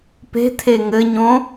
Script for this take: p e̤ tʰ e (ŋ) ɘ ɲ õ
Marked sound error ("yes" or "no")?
no